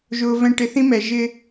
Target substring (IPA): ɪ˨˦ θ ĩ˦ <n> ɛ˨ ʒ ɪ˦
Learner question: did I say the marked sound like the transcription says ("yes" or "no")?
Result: no